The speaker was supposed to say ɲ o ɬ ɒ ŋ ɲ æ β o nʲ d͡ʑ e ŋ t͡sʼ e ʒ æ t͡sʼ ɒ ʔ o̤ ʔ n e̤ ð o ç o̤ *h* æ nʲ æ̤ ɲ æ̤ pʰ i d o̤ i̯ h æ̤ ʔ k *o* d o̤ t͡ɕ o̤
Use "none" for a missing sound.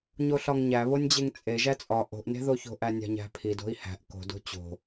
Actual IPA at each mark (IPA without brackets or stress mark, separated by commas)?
ʔ, o̤